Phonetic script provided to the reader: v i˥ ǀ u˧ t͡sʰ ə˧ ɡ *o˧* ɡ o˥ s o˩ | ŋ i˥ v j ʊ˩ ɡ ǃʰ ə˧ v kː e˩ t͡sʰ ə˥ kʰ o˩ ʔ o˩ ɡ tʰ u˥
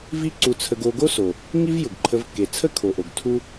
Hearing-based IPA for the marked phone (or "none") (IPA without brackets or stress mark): o˧